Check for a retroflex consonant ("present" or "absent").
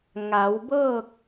absent